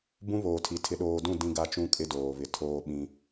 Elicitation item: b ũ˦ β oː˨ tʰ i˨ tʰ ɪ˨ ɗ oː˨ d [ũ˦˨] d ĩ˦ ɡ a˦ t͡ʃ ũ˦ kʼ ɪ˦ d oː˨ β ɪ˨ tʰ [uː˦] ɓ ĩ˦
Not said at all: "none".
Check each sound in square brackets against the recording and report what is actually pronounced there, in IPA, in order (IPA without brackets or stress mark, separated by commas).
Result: ũ˦˨, oː˦